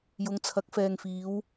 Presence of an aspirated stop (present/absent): present